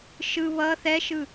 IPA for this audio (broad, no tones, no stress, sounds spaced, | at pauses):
ʃ ɯ β ʌ θ ɛ ʃ ɯ